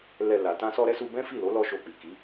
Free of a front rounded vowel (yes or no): yes